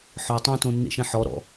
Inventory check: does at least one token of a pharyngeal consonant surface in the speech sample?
yes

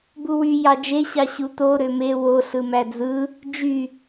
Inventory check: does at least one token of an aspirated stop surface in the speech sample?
no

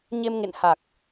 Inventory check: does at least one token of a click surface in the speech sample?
no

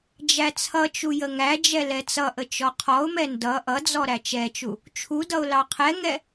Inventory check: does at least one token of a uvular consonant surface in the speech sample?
yes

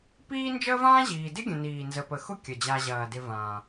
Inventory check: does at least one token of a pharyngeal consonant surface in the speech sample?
no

